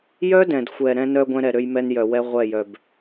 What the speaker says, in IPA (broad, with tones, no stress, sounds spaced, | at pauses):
j œ˦ d ɛ̃˨ d xʷ ɛ˨ ɾ ɛ̃˦ n œ˦ ɡʷ ɛ̃˦ ɾ ɛ˨ ɾ ø˦ j m ɛ˦ n j œ˨ w ɛ˦ ʁʷ ɛ˦˨ j œ˨ b